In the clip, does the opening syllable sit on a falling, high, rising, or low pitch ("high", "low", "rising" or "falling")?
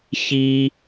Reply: high